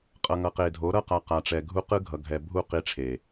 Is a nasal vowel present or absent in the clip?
absent